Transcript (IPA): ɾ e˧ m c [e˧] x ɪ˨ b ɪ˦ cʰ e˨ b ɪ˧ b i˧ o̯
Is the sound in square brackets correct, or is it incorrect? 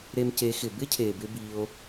incorrect